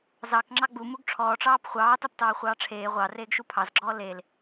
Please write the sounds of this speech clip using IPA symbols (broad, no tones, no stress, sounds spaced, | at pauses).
z ɑ k ŋ͡ǁ ɑ ɡ͡b u m u ɡ ʈ͡ʂʰ ɔː ʈ͡ʂ ɑː p χʷ ɑː t ɑ p t ɑː χʷ ɑː ʈ͡ʂʰ eː ʁʷ ɑ r eː ɡ ʃ u pʰ ɑ z ɡ͡ǁ ɔː l e l